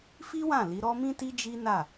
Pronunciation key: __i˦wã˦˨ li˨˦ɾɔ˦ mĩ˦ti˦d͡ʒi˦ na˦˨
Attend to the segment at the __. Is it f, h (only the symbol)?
f